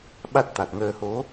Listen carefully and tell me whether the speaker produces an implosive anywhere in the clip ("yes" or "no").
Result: yes